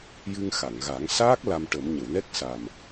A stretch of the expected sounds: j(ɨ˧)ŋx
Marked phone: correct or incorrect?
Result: correct